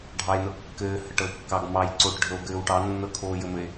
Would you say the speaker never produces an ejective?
yes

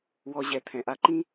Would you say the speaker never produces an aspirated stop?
no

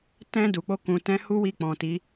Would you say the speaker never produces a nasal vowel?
no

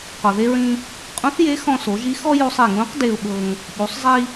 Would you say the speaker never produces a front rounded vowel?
yes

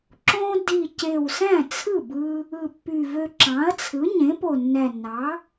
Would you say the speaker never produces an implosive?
yes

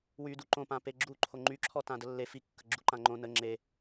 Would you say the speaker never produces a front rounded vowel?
no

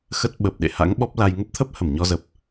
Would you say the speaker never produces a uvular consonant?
yes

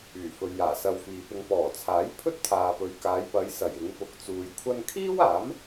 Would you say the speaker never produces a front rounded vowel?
no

